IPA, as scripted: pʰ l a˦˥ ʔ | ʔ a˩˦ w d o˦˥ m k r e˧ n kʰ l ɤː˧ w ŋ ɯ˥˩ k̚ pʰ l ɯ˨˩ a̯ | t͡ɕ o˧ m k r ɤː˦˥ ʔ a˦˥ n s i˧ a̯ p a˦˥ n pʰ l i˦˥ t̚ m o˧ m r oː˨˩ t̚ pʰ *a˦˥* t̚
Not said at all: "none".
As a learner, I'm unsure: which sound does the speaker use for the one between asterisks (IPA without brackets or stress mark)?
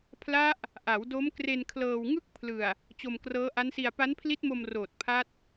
a˦˥